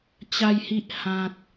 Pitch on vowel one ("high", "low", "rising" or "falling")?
low